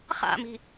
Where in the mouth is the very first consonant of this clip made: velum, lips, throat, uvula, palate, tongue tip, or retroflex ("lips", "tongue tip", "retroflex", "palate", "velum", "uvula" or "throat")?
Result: uvula